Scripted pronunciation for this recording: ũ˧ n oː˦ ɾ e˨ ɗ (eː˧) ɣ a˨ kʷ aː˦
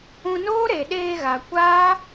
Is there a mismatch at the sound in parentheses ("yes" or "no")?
no